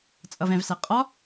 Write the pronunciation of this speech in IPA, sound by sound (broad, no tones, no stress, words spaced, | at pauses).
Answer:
t͡sʼʌvɛ̃vsæ qʼɒ